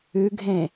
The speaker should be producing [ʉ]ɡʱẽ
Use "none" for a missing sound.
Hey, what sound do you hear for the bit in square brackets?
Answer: ʉ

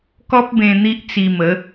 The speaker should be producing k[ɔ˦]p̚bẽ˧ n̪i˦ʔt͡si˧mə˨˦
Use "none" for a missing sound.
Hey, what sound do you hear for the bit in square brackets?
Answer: ɔ˦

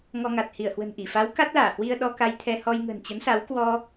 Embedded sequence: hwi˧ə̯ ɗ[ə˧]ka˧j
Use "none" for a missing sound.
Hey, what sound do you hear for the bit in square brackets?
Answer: ɔ˧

